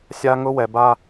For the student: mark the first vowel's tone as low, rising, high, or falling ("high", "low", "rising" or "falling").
high